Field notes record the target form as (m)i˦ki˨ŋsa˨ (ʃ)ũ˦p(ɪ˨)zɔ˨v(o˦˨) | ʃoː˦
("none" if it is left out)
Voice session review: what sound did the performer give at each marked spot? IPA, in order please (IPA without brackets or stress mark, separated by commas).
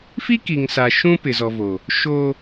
f, ʃ, ɪ˨, o˨